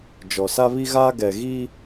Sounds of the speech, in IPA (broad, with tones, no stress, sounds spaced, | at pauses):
d͡ʒ ɔ˨ s a˦ β i˦ ɣ aː˦ ɡ ɛ˨ ɣ iː˦